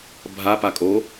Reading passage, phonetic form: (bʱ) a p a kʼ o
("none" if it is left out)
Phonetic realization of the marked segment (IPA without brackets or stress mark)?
bʱ